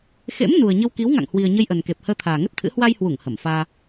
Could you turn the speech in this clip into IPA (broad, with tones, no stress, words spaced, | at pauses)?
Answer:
xḛ˧˥m nu˨˩ə̯ɲə˧w ki˨˦wŋa̰˧˨ŋhwi˨˩ə̯ ɲə˧jʔə˨˩nke˨˩p̚ həː˧t̪ʰaː˨˩ŋə˦˥t̚t̪ʰɨ̰˧˥ hwa˧jhwu˧˩ŋ hə˧˩mfaː˧